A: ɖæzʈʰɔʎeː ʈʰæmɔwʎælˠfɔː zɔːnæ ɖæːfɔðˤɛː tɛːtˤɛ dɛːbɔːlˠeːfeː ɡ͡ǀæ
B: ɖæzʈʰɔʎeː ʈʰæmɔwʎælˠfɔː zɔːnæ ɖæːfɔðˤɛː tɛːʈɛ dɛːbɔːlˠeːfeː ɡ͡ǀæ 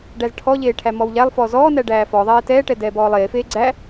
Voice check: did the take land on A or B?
B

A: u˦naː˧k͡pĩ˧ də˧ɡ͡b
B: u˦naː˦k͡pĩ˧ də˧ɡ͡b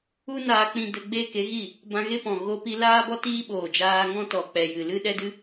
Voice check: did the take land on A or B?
A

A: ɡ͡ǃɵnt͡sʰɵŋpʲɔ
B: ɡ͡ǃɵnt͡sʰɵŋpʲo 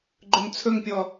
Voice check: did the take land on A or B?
A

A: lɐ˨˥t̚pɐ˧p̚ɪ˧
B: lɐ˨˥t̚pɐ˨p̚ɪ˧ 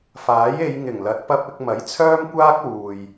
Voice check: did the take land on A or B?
A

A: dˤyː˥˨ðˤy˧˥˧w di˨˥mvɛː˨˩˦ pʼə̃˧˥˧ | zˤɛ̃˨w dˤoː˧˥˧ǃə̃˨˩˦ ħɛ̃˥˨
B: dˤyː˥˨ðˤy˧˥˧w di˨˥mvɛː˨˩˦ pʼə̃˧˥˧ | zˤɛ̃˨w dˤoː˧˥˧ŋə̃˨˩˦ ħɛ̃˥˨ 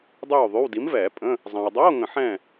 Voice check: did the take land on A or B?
B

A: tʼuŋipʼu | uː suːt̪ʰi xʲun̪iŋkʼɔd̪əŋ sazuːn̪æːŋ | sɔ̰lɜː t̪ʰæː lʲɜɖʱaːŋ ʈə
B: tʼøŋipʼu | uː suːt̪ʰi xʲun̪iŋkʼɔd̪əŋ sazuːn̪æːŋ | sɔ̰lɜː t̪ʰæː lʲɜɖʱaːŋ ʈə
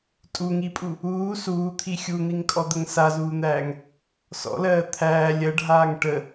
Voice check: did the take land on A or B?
A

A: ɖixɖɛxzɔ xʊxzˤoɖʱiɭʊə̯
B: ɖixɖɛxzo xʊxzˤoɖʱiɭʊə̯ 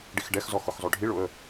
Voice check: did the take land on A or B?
A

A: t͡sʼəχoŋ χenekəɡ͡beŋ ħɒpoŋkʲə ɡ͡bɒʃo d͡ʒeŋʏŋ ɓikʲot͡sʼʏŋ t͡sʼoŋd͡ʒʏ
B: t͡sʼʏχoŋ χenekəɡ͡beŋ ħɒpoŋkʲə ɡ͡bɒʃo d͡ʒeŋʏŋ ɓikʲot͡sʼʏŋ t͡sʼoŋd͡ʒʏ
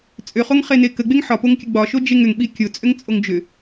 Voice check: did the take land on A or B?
B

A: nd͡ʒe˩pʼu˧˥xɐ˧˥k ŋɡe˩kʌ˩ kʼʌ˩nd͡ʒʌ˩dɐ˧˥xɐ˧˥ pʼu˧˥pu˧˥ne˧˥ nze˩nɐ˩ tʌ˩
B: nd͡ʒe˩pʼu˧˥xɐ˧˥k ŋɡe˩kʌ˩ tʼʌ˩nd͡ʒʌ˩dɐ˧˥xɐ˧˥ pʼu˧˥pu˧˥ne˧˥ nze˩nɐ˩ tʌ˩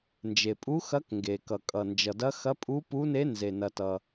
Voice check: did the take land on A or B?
A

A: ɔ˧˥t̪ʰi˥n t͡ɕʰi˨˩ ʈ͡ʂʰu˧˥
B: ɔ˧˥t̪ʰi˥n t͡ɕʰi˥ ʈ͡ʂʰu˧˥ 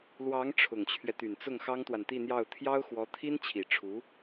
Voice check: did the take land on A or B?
A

